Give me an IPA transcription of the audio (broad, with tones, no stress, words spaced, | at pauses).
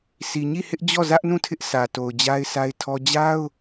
si˨ɲi˦˨hɪ˦ʔ d͡ʑɔ˦˨zä˦ʔnũ˦˨ tʰɪ˦ʔsʰä˨ to˨ʊ̯d͡ʑa˦ɪ̯sʰa˦ɪ̯tʰɔ˦ d͡ʑa˦ʊ̯